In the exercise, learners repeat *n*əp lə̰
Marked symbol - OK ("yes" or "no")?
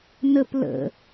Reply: yes